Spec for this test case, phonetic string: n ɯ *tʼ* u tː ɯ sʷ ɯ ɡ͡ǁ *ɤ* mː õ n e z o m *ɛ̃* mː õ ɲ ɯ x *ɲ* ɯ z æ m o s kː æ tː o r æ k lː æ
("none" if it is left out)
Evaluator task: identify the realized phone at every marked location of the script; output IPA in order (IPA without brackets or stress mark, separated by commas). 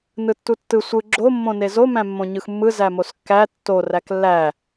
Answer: tː, o, æ̃, mː